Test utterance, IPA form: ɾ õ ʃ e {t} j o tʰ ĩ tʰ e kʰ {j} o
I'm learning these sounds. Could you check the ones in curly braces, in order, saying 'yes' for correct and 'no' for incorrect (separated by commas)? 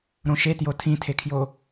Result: yes, yes